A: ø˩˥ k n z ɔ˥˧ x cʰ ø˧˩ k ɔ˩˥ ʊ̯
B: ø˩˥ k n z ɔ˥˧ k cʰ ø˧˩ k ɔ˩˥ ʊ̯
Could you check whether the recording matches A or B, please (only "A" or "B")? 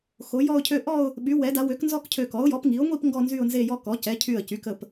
B